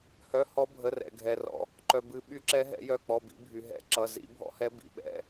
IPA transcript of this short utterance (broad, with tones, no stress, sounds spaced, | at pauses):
h œ˩˧˩ h ɔ˨˦ bʱ ə˩˧˩ r ɛ̰˩ ɡʱ ɛ˩ r ɔ̰˩ | ǃ œ˩ b ɨ˨˩˦ ɓ y˨˦ ǁ ɛ˨˦ ɦ ɛ̰˨˩˦ j œ˩˧˩ k͡p ɔ˩˧˩ b ḭ˨˩˦ bʱ y˩ ɦ ɛ̰˨˩˦ ǁ ʌ˩˧˩ z ḭ˨˩˦ bʱ ɔ̰˨˦ h ɛ˨˦ b ḭ˩˧˩ ɓ ɛ̰˩˧˩